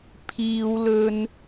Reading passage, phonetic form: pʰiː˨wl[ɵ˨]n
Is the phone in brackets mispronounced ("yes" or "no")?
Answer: no